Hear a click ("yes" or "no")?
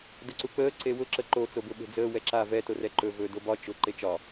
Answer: yes